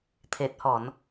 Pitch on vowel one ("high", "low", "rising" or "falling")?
low